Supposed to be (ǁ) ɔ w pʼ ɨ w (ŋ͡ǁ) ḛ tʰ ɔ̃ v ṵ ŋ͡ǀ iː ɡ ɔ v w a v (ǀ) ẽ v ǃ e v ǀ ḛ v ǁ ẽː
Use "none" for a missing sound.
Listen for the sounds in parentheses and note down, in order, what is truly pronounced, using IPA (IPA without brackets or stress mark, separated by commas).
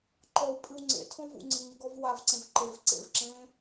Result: ǃ, ŋ͡ǀ, ǀ